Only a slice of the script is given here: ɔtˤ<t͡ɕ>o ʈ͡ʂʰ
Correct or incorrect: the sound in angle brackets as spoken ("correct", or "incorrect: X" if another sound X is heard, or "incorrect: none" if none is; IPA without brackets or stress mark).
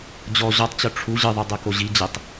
correct